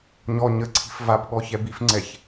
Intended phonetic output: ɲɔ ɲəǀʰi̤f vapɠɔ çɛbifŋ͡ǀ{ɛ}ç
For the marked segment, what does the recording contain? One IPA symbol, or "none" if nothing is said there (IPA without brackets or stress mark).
ɛ